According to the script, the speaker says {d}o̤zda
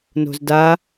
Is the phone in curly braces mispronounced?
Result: yes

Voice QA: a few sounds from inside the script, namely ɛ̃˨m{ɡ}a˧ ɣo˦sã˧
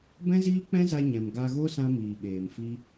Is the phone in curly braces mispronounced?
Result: no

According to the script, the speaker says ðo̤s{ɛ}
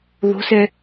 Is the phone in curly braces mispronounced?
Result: no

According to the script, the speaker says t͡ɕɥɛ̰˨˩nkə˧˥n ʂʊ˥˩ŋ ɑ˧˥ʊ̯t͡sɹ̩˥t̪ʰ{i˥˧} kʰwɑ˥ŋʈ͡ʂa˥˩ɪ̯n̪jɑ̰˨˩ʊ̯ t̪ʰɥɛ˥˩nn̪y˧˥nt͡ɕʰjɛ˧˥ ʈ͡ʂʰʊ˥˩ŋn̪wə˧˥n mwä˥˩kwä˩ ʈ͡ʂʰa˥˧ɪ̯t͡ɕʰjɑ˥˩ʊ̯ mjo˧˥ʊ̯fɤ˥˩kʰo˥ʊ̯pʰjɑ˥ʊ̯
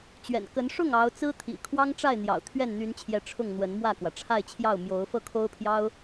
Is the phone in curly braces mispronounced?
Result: yes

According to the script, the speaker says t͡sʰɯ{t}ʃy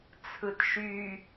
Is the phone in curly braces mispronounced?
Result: no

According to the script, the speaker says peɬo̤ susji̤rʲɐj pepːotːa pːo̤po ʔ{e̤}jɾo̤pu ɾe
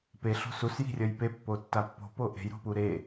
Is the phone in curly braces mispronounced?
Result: no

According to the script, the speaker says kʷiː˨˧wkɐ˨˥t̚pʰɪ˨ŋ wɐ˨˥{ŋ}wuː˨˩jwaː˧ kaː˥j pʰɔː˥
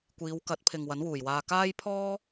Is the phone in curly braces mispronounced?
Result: yes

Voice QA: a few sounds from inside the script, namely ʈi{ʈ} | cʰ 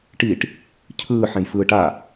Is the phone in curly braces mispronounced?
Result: no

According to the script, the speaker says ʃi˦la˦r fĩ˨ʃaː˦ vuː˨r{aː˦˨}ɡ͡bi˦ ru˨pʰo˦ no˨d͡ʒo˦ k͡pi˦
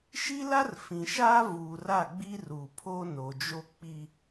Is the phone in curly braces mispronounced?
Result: yes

